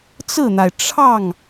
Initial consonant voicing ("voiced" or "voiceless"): voiceless